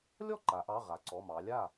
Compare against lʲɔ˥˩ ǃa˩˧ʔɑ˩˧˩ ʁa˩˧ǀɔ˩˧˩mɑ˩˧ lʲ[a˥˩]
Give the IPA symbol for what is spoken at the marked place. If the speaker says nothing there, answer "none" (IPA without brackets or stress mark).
a˥˩